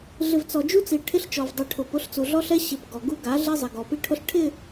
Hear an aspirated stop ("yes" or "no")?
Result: yes